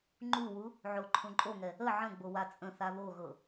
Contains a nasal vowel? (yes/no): yes